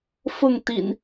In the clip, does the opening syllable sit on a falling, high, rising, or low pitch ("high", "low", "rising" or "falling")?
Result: falling